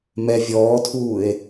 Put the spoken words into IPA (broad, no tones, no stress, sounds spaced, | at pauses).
m ɛ vʲ ɔː tʰ uː e̯